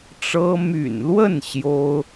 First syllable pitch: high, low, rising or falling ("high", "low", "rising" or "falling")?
high